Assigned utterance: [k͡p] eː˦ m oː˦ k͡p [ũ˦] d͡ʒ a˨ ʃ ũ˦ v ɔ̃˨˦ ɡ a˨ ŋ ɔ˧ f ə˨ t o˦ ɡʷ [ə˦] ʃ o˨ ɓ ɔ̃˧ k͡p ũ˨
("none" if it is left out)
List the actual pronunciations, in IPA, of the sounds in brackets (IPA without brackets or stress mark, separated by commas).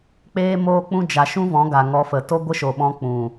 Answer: k͡p, ũ˦, ə˦